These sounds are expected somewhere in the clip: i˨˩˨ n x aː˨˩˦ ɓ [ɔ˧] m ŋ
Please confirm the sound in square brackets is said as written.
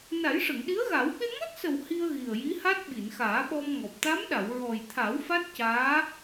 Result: yes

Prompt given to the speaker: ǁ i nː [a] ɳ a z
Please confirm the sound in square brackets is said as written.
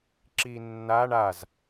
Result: yes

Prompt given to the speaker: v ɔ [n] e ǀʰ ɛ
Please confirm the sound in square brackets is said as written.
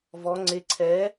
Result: no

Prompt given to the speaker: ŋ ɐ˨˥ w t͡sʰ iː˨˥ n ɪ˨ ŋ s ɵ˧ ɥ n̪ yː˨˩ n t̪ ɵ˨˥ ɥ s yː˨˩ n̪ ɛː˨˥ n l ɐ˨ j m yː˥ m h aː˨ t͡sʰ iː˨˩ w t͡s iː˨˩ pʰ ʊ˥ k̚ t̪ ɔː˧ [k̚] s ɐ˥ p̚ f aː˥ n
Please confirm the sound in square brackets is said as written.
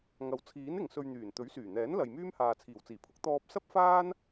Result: no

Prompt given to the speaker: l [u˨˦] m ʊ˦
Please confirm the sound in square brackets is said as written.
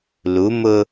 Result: yes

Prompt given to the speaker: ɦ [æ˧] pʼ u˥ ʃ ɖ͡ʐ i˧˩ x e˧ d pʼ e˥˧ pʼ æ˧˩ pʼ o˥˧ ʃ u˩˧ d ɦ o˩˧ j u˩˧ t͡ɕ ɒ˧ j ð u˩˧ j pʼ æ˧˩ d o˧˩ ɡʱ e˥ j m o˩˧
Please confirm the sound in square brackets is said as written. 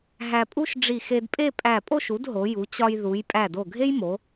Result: yes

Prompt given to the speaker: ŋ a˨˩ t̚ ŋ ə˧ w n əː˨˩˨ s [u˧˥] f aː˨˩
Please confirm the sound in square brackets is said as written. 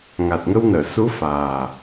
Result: yes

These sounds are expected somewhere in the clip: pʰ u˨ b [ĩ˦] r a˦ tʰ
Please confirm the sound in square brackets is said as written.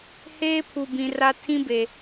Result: no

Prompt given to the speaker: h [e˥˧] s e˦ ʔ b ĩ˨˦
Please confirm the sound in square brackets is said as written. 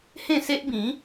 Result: no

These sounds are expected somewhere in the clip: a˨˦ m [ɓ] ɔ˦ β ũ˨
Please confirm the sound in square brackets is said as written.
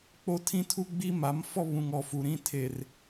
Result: no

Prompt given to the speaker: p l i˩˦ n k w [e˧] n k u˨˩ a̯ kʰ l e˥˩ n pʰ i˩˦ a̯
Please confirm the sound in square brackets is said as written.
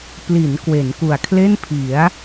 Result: no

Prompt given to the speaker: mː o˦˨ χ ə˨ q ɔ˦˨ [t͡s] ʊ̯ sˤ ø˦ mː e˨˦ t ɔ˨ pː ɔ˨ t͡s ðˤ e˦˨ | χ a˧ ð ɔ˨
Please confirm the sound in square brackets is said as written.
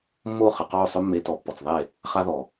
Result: no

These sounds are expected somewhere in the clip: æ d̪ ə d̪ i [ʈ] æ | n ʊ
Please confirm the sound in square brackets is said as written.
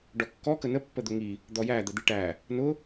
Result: yes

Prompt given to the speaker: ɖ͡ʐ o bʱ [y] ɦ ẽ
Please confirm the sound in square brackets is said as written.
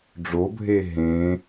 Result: no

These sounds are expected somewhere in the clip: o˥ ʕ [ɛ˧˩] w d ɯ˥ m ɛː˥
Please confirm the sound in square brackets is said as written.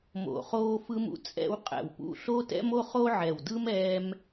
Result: yes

